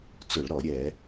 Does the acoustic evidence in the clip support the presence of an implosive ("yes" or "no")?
no